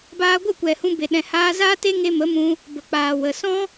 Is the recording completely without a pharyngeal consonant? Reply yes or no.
yes